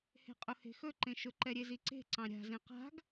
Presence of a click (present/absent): present